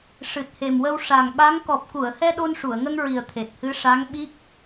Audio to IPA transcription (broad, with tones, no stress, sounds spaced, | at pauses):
ʂ ɨ˨˩ t̚ h e˨˩ m w ə˧ w ʂ a˨˩ ŋ ɓ a˧˥ ŋ k ɔ˨˩ p̚ k u˨˩˨ ə̯ h ɛ˧ ɗ o˧ n ʂ u˨˩˨ ə̯ ŋ ə˧ ŋ ɹ i˨˩ ə̯ t̪ʰ e˨˩ t̚ h ɨ˧˥ ʂ a˧˥ ŋ ɓ i˦˥ k̚